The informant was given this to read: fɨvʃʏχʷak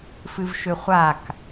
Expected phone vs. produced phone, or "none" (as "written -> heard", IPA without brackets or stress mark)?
none